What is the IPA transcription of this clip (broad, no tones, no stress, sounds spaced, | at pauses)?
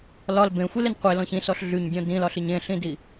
l ɒ l b ẽ xʷ i l e n qʷ e l ɔ̃ ç ĩ s ɔ ɬ ɮ y ɲ dʲ ɔ̃ d ĩ l ɒ ɬ i ɲ ẽ ɬ ĩ d i